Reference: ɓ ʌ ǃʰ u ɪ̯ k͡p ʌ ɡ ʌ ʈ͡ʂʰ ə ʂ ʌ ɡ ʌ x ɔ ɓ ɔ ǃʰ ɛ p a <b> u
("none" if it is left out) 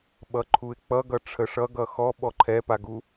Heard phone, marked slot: ɡ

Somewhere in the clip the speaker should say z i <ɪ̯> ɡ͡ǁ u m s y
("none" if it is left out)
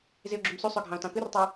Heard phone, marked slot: ʊ̯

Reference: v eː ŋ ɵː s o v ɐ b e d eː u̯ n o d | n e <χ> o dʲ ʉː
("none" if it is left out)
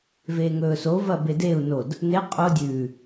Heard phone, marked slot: qʼ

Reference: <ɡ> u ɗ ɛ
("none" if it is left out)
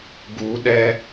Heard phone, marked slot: ɡ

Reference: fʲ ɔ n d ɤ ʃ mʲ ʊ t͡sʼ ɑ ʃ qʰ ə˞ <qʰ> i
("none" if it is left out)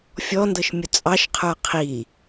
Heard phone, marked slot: qʰ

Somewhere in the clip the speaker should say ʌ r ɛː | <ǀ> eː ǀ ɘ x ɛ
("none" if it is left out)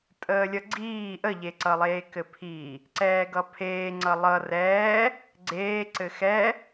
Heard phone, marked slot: ɡ͡ǀ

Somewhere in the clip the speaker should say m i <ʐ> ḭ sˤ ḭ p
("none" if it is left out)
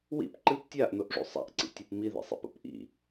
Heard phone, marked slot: ð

